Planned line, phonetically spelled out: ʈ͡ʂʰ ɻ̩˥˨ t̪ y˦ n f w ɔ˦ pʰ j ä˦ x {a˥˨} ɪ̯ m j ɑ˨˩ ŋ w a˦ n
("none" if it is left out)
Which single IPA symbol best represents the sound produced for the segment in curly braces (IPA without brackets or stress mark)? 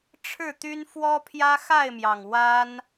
a˥˨